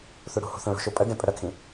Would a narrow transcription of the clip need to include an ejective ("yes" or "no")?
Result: yes